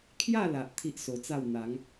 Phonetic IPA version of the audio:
kʰ j a˥˧ l a˨ ʔ t̪ʰ i˦ ʔ s o˧ t͡s a˥˧ w n̪ a˨˦ ŋ

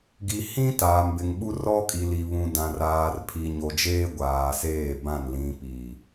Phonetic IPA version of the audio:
ɡ i˨ h ĩ˦ t aː˨ m b ɪ˨ ŋ ɓ u˦ r ɔ˦ kʼ i˨ l i˨ β ũ˨ d ã˨ r aː˨ r pʰ i˨ ɲ o˨ d͡ʒ eː˦ ɡʷ aː˨ s eː˦˨ b ã˦˨ n l ĩ˨ p i˨

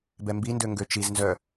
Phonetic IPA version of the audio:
b ɛ m b i n d ø ŋ ɡ ø t͡ʃ i z n z œ

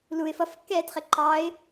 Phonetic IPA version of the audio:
l u ɪ̯ f ʌ f kː ɛː t χ ɪ ǃ ɑ ɪ̯

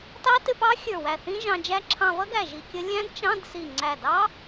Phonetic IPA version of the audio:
t ɑ˦˥ t ɪ˧˥˧ p ɑ˦˥ xʲ ə˞˧˩ w æ˧˩ θ ĩ˦˥ ʒ ɑ̃˧ d͡ʒ æ˦˥ ǁʰ ɑ̃˧ v ʌ˦˥ ɡ æ˧˩ ʒ i˧ kʲ ə˦˥ lʲ æ̃˦˥ d t͡ʃ ɑ̃˧˥˧ d s i˧˩ ŋ͡ǀ æ˧˩ d ɑ˦˥

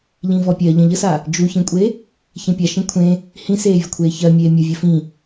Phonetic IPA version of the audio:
ʎ ĩ v ɔ pʲ ɜ ʎ ə̃ ʎ ə s a | d͡ʒ u ç ĩ kʷʼ e | ç ẽ pʲ a ʃ ĩ kʷʰ ẽ | h ĩ s eː vʲ ə kʷʰ eː ç ɜ mʲ eː mʲ u vʲ ɜ f ĩ

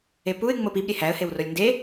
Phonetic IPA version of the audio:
e p u ɪ̯ ŋ͡m o p i b ɾʲ e h æ ə̯ h e w r o lʲ n d e

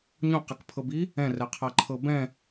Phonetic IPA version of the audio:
ɲ õ q ɛ k pʰ ɤ b i | ɛ̃ r ɛ qʰ a ǃʰ ɤ b ɛ̃

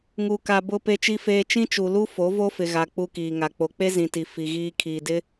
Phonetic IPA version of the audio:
ŋ u˨ k a˨ b ʊ˦ p e˦ t͡ʃ i˦ f eː˦ t͡ʃ ĩ˦ t͡ʃ u˨ l u˦ f o˨˦ v o˦ f ɪ˨ ɣ a˨ k͡p u˦ k iː˨ ŋ a˨ k͡p o˨ k͡p e˦ z ĩ˨ t i˨ f i˨ ɣ iː˦ kʰ iː˨ d ɪ˦

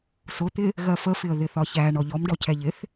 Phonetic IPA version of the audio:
s ʊ t̪ ɪ | ɣ ɜ f ə f ɪ ə̯ ð ɪ θ ɒ ç æ ɳ ɔ ʎ ɔ m ɖ ɔ cʰ ɛ ʎ ɪ θ

